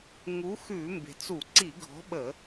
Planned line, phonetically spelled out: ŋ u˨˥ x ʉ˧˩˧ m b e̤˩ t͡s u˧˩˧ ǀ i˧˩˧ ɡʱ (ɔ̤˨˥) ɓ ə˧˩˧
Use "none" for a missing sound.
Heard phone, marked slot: ɔ̤˨˥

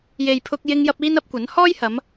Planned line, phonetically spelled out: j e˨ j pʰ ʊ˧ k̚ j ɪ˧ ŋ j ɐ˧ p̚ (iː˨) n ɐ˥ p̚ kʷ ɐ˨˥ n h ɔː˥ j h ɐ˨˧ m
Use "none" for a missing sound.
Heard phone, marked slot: iː˥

